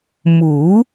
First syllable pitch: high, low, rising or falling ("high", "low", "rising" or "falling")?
rising